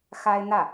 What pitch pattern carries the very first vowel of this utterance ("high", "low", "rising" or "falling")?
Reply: high